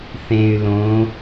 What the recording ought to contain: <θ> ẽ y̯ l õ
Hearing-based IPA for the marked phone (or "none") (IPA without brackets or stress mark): θ